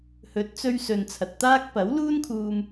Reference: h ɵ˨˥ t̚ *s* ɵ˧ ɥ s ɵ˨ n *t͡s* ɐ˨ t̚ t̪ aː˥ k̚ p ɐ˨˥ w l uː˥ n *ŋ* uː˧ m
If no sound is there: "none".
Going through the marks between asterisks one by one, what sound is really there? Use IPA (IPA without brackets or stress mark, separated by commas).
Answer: t͡s, t͡sʰ, kʰ